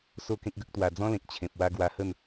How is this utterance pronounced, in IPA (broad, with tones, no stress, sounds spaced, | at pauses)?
s o˥˧ k ẽ˦ k̚ ɡ ə˦ k̚ t̪ w a˧ d͡z ɔ̃˦ l ẽ˨ k̚ t͡ɕʰ ẽ˨ p̚ w a˧ ɡ w a˧ h ə˥˧ n